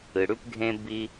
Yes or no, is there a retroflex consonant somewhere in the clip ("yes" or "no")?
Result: yes